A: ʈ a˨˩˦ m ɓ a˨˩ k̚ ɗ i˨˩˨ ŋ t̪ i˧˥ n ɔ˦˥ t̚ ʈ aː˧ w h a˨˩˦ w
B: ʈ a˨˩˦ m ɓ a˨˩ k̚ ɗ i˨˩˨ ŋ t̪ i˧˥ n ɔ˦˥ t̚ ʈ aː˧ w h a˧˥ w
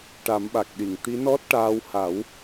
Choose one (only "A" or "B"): A